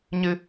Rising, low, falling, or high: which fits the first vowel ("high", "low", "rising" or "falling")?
high